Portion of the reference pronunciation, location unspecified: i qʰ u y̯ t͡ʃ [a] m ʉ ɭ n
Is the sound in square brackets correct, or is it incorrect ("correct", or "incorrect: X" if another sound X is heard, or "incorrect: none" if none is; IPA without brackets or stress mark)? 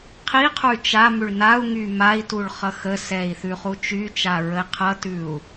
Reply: correct